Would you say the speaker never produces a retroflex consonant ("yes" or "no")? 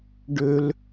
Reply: no